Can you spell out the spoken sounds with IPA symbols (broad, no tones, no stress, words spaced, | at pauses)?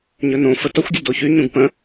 ɲɵnõfə tʌxʷdʲə doçyɲũɡ pə̃